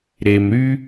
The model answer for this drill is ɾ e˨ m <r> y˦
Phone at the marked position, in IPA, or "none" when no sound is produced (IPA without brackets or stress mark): ɾ